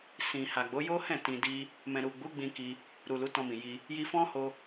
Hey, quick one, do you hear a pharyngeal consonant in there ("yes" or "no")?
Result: no